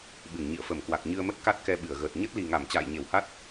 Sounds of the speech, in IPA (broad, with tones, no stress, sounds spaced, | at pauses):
ɓ ɨ˧˩ ŋ ɲ ḭ˧˨ ə̯ f ə˧˩ m k w a˨˩ k̚ ɲ ɨ˧ ə̯ m ə˦˥ t̚ k a˦˥ t̚ k ɛ˧ ɓ ɨ˧˩ ə̯ ɣ əː˨˩ t̚ ɲ ə˦˥ t̚ l i˨˩ ŋ a˧˩ m t͡ɕ a̰ː˧˨ j ɲ e˧˩ w h a˦˥ t̚